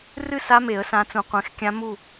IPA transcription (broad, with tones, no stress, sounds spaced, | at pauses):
r ɨ˥˧ s a˦˥ m e˨˩˦ ə̯ s ã˨˦ t͡s ũ˨ qʷ ẽ˨˦ x kʲ ã˦˥ m u˥˧